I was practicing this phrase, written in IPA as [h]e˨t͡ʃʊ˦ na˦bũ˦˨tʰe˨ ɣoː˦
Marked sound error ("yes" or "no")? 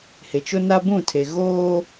no